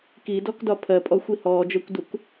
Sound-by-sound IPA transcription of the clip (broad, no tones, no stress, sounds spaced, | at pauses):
k i d ɔ k d ɒ pʰ ɜ pʼ ɔ xʷ i h ɔː d͡ʒ ɜ kʷ d u k